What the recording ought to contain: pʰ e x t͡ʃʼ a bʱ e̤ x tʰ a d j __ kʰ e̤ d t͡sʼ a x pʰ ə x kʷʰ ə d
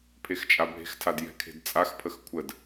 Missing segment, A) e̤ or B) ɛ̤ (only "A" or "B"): B